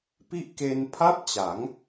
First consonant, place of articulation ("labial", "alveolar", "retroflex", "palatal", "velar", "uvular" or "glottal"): labial